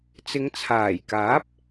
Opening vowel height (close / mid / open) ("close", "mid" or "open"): close